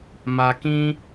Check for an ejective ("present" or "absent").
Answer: absent